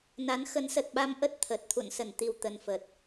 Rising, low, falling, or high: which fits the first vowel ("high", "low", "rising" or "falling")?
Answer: rising